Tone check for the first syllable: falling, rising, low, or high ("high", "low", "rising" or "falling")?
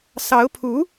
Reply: rising